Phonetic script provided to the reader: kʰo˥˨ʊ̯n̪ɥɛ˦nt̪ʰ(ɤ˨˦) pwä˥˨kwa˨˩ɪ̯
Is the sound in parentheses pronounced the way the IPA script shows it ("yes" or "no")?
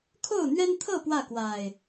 no